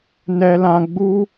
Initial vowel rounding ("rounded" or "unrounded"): unrounded